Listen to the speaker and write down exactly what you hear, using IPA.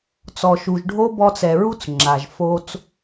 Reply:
t͡sɔ˨ʃu˨ʒɖʱo˦ bɔ˧t͡sɛ˨ɹu˦t͡s ŋ͡ǁa˨ʒfo˦t͡s

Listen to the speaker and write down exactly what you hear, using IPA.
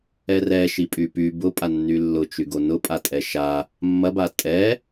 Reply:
ɛrɛ ʃipʼypy bʊ pʼanːylːʊ t͡ʃyɡonʊpʼa tʼɛʃa | mːɐba tʼɛ

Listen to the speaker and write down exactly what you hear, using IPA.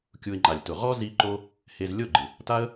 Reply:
kʲu˧ɪ̯ŋ͡ǃa˨lʲtʊ˨ ʁɔ˦zi˧ ǃo˦ | he˧z lʲo˦˨ɡ͡ǃɪ˨ | ta˦ə̯

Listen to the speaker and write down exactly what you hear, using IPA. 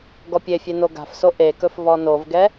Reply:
ɡɔpʲefʲe noɡa̤fso ʔekɵf vɔnovɡɛ

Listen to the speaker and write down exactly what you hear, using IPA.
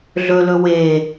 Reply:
ɮɵlɵ we

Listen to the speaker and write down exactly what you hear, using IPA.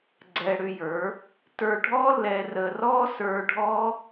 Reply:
ɡ͡ǀɛ˧ɽʏ˧jə˞˨˦ | tə˞˧ɖʱɔ˦ lɛ˧rə˧ rɔ˦sə˞˧ ɖʱɔ˦

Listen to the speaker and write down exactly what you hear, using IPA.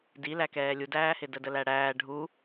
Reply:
dilækɛː lʲudæːhɪ dədəlæɽæː ɖʱu

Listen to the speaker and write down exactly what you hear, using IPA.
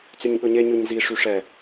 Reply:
t͡syɲɠɵɲe ɲʉɲzi ʂyʂɛ

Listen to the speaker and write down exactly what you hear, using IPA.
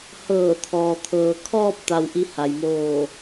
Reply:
hɤː˧˩ t̪ʰɔː˩ t̪ʰɤː˩kʰɔː˧p̚t̪a˩w ʔi˧ha˩jmoː˧˩

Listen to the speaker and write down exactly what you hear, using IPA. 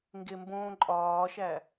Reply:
ŋɡembõːǃʼɒːʃæ

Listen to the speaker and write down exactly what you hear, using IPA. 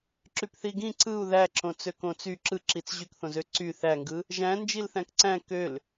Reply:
ǁypθiɡĩ ǀɯu̯ ðæǁõ t͡søkõt͡sy ǁɯǁit͡s ʑykθõzø ǀy θæŋɡɯ | ʒæ̃ nd͡ʒilθæ̃kǀæ̃ køl

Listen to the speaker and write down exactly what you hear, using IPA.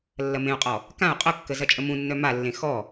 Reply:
lːɐmẽu̯qʼɔ | kãu̯ qʼʊkːə zɐt͡ʃʼəmũnːœ malːẽ xɔ

